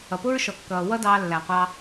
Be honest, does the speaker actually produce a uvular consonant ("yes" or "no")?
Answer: yes